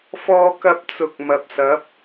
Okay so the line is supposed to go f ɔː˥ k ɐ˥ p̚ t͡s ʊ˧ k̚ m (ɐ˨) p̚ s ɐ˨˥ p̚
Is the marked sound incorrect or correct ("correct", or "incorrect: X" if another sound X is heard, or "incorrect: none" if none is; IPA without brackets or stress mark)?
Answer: correct